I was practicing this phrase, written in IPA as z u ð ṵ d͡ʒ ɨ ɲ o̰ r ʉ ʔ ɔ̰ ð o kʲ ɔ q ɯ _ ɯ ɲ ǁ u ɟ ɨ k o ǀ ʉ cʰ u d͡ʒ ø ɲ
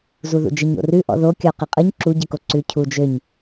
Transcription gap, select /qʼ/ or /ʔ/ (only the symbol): qʼ